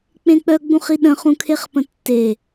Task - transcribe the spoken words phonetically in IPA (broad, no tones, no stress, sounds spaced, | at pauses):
k͡p ẽ k͡p œ ɡ͡b ũ χ i ɗ ə̃ χ ũ kʰ e χ p ə̃ tː e